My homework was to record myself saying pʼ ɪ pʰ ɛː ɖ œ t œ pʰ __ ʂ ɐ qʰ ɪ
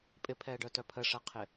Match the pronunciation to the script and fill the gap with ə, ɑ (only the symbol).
ə